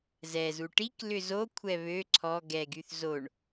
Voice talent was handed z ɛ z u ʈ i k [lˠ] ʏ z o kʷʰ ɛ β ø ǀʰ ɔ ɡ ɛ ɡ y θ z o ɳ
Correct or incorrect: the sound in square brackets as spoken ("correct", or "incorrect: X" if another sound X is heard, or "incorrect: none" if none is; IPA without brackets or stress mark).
incorrect: l